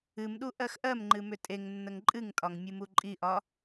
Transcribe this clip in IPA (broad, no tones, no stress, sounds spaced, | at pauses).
ɨ m ɗ u ʔ ɜ x ʔ ɜ m ŋ͡ǃ ɨ m ʏ tʼ e ŋ nː ə ŋ ǃʼ ɨ ŋ tʼ ɒ ŋ mʲ ɨ m u ǃʼ i ʔ ɒ